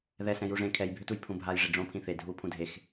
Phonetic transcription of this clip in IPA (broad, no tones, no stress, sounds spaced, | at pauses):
ð ɛ s ɛ̃ j u ʐ ẽ kʰ ɛ j bʱ ʏ t u j pʰ ũ bʱ a j ʐ i ɖ͡ʐ õ pʰ ĩ θ e dʱ u pʰ ũ dʱ e x